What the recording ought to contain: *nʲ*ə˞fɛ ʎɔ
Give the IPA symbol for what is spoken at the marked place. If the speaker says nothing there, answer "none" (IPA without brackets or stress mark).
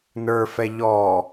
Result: n